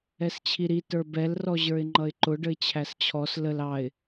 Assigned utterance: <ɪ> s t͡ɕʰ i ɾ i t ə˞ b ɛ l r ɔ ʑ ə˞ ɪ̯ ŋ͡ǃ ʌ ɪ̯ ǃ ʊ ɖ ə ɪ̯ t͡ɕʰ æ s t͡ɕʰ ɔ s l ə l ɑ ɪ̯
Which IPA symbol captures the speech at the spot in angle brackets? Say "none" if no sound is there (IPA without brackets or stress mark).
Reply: ɛ